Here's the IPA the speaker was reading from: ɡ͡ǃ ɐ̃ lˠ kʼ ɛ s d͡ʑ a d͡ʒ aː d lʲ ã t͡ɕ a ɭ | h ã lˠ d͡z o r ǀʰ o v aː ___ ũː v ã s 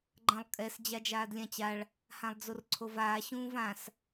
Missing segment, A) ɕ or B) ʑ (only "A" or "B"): A